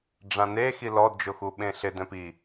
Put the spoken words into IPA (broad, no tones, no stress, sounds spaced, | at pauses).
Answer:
ɖ͡ʐ ã n e x i l ɔ d d͡ʒ ʊ x u ɓ ẽ ɬ ɪ d ɛ̃ p i